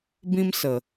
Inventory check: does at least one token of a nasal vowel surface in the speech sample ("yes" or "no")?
yes